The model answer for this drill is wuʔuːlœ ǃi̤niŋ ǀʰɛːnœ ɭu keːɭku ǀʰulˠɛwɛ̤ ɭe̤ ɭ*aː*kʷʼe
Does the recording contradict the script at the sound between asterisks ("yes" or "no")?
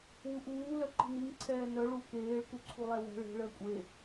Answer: yes